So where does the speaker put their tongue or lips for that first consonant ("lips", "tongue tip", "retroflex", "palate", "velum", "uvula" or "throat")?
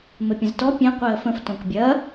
lips